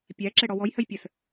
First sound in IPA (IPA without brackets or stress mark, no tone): pʲ